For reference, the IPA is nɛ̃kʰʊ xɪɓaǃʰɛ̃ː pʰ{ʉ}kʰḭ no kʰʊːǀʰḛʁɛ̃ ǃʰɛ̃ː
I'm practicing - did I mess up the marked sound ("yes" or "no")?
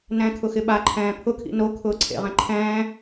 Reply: yes